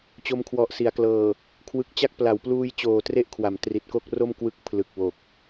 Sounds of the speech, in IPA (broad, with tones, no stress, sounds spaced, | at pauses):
t͡ɕ o˧ m kʰ w ɔ˨˩ ʔ s i˩˦ a̯ k l ɤː˨˩ | kʰ w ɯ˨˩ k̚ t͡ɕ a˥˩ k̚ p l a˩˦ w p l uː˧ j t͡ɕ oː˨˩ t r e˦˥ ʔ kʰ w a˩˦ m t r i˨˩ t̚ k o˥˩ k̚ r o˥˩ m k w ɯ˥˩ k̚ pʰ l ɯ˨˩ k̚ w o˨˩ k̚